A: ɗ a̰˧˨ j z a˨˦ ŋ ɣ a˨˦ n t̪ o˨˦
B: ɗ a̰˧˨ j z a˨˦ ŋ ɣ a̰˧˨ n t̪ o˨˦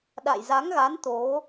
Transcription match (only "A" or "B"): A